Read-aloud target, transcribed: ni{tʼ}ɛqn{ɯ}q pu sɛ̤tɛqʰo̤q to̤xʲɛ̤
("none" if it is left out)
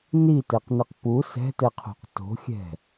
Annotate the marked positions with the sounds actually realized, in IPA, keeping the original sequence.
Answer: t, ɯ

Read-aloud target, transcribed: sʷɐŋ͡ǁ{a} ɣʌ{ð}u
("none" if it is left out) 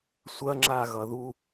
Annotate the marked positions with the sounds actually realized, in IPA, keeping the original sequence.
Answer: a, ð

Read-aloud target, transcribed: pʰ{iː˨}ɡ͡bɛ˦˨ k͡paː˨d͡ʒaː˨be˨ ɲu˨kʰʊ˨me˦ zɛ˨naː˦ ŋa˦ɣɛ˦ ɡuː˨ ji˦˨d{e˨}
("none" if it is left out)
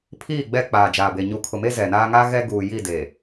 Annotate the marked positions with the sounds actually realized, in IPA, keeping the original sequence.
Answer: iː˦˨, e˨

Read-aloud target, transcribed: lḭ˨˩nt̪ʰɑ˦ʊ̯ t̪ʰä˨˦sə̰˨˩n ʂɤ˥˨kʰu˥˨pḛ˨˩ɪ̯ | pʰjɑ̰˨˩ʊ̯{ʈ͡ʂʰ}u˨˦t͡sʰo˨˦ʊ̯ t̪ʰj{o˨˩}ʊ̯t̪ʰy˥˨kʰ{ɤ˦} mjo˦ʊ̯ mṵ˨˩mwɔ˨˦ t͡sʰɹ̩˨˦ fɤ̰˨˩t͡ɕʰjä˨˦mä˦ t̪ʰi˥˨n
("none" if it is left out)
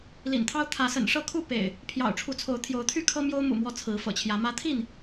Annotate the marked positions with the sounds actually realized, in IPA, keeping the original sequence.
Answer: ʈ͡ʂʰ, o˨˦, ɤ˦

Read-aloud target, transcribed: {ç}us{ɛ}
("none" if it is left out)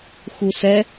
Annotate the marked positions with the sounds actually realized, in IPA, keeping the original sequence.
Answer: x, ɛ

